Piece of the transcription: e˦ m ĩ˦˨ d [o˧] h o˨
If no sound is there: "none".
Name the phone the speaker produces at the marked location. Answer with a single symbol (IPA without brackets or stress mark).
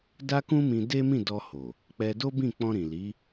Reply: ɔ˧